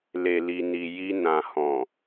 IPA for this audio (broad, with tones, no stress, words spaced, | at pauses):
le˨li˨ni˨ ji˧ nã˨hɔ̃˨